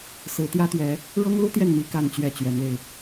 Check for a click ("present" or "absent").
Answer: absent